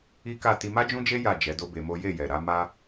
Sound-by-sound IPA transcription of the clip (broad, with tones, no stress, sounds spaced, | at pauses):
i˦ k a˦˨ t i˧ m a˦ d͡ʒ ũ˦ d͡ʒ e˦ j a˦˨ d͡ʒ ɛ˨˦ d o˦ b e˧ m o˦ j e˦˨ j ɛ˨ ɾ a˨˦ m a˧